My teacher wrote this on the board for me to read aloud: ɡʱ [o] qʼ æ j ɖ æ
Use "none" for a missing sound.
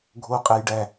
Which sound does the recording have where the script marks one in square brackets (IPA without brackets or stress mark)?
o